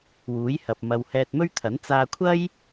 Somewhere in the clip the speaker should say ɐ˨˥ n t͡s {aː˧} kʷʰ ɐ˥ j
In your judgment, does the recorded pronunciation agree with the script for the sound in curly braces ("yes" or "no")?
yes